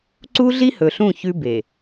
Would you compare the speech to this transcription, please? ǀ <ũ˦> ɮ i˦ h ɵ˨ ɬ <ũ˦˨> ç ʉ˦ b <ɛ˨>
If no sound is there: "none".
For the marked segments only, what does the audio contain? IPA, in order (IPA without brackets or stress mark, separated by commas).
u˦, ũ˦˨, e˨